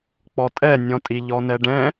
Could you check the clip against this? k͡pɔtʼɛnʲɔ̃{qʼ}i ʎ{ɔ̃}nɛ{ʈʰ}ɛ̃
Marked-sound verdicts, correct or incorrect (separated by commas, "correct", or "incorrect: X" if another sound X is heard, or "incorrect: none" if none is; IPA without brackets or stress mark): incorrect: tʼ, incorrect: ɔ, incorrect: ɖ